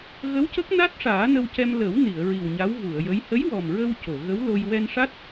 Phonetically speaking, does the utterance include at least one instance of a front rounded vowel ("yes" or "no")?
no